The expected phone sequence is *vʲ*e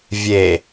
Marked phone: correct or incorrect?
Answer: correct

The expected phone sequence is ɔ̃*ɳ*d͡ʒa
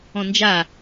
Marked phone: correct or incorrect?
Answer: incorrect: n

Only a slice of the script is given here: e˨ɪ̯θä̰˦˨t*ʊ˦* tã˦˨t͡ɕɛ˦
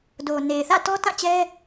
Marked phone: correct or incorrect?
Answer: incorrect: ɔ˦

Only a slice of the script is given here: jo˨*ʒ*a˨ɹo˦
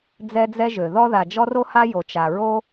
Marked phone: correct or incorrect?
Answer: incorrect: t͡ʃ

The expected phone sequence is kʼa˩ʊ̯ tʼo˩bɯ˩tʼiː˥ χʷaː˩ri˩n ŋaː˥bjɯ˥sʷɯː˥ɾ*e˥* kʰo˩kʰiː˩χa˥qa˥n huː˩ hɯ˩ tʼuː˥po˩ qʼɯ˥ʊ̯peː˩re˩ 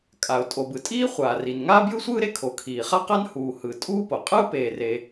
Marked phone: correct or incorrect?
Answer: correct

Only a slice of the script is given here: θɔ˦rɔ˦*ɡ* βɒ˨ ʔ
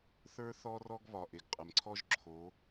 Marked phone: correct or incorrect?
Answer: correct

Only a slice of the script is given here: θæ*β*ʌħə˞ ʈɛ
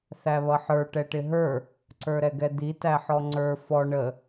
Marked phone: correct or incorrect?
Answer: correct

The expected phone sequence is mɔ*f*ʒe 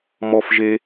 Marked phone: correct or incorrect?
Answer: correct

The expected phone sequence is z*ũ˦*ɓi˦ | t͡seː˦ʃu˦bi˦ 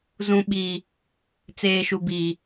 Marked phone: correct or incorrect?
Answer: correct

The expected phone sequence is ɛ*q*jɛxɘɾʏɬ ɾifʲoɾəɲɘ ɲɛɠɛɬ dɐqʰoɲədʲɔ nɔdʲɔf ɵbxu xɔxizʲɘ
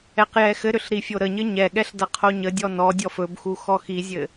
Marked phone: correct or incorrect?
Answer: correct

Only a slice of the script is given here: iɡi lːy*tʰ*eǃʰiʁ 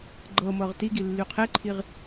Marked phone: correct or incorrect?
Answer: incorrect: qʰ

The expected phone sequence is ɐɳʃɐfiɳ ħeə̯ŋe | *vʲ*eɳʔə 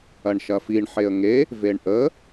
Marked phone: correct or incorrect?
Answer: incorrect: v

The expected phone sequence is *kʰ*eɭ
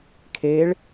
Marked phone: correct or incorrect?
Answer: correct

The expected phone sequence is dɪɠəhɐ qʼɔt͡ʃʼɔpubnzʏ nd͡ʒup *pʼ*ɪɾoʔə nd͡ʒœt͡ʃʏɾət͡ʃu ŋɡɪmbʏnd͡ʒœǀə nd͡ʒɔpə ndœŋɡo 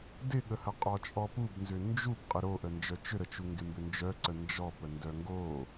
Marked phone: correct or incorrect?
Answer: incorrect: qʼ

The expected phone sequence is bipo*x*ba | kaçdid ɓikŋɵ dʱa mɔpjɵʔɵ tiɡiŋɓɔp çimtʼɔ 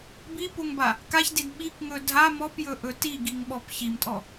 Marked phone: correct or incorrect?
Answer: incorrect: ŋ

